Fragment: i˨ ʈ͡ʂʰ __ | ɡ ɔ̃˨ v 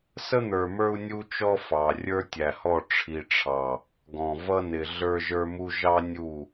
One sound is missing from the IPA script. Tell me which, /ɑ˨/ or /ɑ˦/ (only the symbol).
ɑ˨